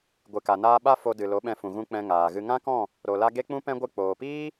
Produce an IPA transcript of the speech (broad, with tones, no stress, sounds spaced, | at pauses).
ɡʷ ɨ˨ k a˨ n aː˧ ɓ a˦ f o˧ d ɨ˨ l o˨˦ ɓ ɛ̃˧ f ũ˨ ɣ ũ˧ k͡p ɛ̃˧ ŋ aː˨ ɣ ɨ˧ ŋ ã˦ k ɔ̃˦˨ | ɾ o˨ l a˧ ɡ e˦ k͡p ũ˦ p ɛ̃˦ ɡʷ ɨ˧ k͡p oː˨ p iː˦